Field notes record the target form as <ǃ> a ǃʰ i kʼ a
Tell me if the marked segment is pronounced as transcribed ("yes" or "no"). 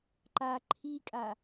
yes